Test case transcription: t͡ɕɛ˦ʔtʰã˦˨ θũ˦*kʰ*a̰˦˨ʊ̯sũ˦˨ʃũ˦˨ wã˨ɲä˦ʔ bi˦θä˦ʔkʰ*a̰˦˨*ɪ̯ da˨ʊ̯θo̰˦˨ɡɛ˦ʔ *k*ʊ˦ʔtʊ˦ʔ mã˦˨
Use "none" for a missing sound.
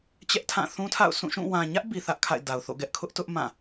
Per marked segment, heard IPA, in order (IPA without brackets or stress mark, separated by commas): tʰ, a̰˦˨, kʰ